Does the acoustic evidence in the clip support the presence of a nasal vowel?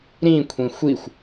yes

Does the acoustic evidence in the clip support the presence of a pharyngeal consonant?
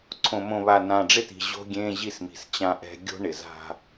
no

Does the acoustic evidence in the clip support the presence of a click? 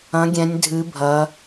no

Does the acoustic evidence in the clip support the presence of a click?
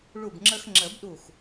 yes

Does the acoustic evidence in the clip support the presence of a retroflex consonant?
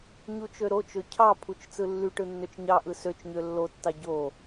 yes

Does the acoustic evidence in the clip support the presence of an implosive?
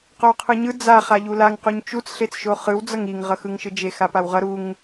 no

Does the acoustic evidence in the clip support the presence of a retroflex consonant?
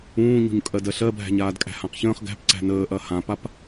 no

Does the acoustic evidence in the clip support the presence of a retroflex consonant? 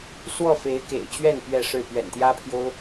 yes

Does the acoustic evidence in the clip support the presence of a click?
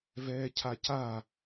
no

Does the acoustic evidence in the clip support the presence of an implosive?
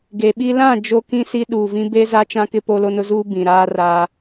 yes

